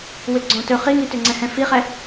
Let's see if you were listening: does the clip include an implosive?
no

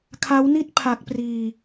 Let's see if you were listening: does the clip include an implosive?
no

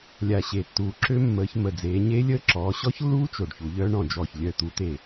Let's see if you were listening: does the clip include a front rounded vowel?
yes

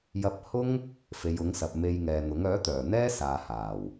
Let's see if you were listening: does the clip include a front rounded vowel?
yes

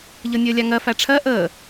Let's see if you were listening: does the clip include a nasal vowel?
no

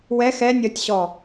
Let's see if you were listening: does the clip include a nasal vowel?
no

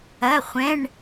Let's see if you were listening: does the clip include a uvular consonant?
yes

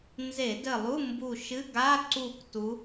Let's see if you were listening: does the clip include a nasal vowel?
no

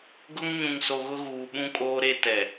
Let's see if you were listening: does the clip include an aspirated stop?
no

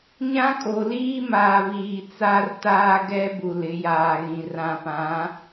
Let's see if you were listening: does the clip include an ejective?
yes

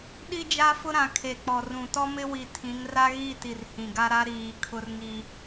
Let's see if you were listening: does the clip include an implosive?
yes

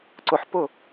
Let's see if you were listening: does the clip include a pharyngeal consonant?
yes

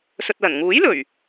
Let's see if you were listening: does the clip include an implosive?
no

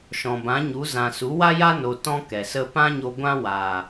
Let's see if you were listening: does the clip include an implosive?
no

